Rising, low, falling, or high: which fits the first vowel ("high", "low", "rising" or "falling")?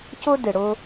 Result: high